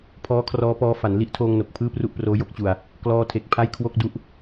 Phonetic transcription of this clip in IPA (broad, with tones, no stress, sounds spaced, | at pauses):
pʰ ɔː˦˥ kʰ r ɔː˦˥ p ɔː˦˥ f a˩˦ n l i˥˩ ʔ tʰ oː˧ ŋ n o˨˩ k̚ pʰ ɯː˥˩ p r u˥˩ ʔ p r oː˦˥ j o˦˥ k̚ t͡ɕ u˧ a̯ | k l ɔː˦˥ tʰ e˨˩ k̚ pʰ a˥˩ j kʰ w o˥˩ k̚ d u˥˩ ʔ